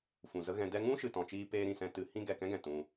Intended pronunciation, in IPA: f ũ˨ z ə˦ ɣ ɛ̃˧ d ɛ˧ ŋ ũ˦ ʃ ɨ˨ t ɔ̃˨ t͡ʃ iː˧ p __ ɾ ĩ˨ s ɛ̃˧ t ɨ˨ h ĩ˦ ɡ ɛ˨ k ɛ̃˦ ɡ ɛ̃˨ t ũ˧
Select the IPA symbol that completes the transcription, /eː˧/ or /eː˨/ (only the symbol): eː˧